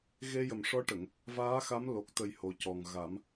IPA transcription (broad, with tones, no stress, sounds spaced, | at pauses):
ɣ e˧ j ə˨˩ m ʂ ɔ˧˥ ʈ ə˨˩˨ ŋ | v aː˧˥ x a˧˥ m l o˨˩ k̚ t̪ ə˨˩ j h o˨˩ c ɔ˨˩ ŋ ɣ a˨˩˦ m